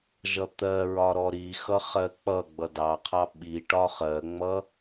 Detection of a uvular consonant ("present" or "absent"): present